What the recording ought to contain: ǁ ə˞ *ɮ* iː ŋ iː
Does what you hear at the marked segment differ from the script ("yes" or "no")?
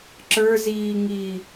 yes